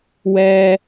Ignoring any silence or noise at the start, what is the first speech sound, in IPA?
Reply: w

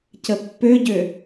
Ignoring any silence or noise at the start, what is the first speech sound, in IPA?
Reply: c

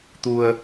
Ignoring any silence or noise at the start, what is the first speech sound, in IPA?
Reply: t̪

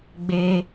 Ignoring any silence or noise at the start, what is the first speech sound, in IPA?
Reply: ɡ͡b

